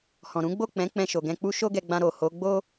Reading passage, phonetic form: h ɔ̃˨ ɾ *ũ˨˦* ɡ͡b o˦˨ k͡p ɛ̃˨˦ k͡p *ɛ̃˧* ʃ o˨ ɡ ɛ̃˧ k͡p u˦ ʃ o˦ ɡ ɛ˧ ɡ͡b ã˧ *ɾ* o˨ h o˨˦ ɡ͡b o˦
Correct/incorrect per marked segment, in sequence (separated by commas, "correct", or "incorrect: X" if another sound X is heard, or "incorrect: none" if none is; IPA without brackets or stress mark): correct, correct, correct